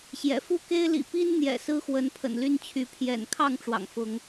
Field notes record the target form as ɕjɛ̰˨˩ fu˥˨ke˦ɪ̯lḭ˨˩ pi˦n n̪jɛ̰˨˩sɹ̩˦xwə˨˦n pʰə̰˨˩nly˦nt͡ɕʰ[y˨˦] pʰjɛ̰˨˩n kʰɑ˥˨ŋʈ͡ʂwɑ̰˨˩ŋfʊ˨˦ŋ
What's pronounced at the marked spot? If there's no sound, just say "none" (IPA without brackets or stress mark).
y˨˦